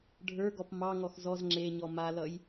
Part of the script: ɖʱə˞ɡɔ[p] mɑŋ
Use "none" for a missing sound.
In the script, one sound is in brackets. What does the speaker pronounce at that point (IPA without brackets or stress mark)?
p